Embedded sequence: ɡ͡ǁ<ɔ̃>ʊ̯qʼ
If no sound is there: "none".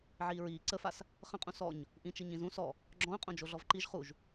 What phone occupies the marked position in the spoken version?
ɔ̃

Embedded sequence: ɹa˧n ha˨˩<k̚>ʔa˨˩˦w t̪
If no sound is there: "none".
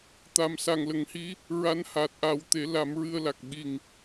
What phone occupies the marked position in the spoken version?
t̚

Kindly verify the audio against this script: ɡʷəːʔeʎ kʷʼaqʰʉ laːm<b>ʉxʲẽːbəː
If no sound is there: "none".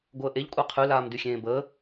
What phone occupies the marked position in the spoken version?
d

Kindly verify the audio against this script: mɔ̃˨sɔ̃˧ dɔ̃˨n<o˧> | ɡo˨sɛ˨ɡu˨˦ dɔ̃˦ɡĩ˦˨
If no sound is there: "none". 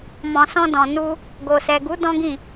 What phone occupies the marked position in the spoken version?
u˧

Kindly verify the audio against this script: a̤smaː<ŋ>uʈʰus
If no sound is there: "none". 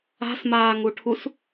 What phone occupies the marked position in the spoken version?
ŋ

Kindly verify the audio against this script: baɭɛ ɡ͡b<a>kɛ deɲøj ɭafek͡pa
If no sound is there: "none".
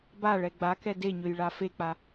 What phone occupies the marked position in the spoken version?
a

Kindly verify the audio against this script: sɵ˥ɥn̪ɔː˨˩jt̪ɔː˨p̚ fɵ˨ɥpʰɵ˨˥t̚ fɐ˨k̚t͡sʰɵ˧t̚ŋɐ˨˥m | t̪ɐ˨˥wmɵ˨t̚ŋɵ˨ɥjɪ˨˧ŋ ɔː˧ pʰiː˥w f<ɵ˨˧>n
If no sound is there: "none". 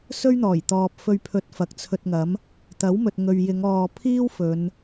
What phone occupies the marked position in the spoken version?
ɵ˨˧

